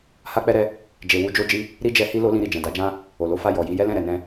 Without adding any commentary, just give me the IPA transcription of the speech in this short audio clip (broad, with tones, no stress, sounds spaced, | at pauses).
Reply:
h a˦ k͡p ɛ˦ ɾ ɛ˦ | d͡ʒ e˧ w u˧ d͡ʒ o˦ d͡ʒ i˦ | ɾ i˦ d͡ʒ ɛ˧ h i˦ l o˦ l ĩ˧ ɾ i˨ d͡ʒ ɛ̃˨ d a˨˦ d͡ʒ ã˦ | o˨ l o˧ f a˧ j ɔ˨ j i˨˦ j ɛ˦ l ɛ̃˦˨ ɾ ɛ˨ n ɛ̃˧